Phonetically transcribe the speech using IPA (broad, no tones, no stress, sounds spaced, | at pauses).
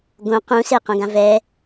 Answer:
ɡ õ q ũ s e q õ ɡ ã v ɛ